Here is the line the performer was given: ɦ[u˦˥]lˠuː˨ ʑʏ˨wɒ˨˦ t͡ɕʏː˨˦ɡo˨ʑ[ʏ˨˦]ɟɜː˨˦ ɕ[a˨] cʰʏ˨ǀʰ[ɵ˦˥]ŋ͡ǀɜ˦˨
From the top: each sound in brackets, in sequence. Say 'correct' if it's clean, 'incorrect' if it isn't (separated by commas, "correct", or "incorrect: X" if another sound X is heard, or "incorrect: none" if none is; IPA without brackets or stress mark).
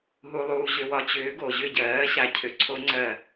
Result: incorrect: u˨, incorrect: ʏ˦˨, correct, incorrect: o˦˥